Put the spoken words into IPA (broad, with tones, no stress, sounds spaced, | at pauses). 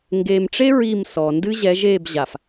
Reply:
ŋ ɡ eː˨ m ʈ͡ʂ e˦ ɹ i˦˨ m s ɔ˨ n d ɨ˦ ʑ ɛ˨˦ ʒ eː˦˨ b ʑ a˨ f